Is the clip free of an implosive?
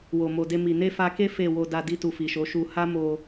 yes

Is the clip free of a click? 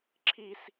no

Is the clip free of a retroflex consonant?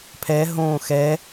yes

